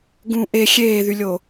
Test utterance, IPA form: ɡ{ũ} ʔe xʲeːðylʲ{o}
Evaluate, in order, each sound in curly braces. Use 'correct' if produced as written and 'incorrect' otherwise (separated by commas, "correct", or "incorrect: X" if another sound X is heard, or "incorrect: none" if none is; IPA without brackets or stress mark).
correct, correct